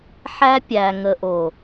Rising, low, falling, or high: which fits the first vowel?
high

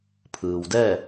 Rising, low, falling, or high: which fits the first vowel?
low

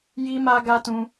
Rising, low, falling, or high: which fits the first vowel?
high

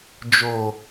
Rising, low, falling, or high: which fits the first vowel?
low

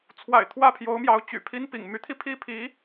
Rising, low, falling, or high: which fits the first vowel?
low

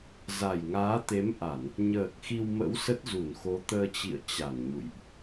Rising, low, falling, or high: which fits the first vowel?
low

